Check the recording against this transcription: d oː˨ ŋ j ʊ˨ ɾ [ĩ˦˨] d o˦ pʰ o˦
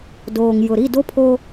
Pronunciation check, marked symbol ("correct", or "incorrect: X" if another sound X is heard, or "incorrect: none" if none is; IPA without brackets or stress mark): incorrect: i˦˨